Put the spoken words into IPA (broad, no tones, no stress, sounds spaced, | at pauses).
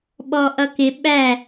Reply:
ɓ ɔ ʔ ʌ k ɪ ɓ æ